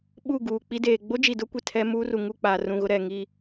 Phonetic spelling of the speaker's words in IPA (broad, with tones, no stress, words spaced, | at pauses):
ɓu˦˨ɡuː˨k͡pi˦deː˨ ɡ͡bo˦d͡ʒi˨dʊ˦kʷe˨ tʰɛ˦ muː˦ru˨ŋu˦˨k͡paː˨ rũ˨ɣʊ˦ ɾɛ˨ ŋi˦˨